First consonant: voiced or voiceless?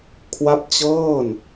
voiceless